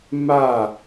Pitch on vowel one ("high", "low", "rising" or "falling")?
falling